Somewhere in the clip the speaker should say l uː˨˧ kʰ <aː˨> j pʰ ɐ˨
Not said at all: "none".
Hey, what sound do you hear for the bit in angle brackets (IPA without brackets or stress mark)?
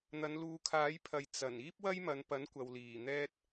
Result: aː˨˥